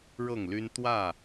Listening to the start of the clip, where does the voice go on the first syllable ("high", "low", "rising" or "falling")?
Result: falling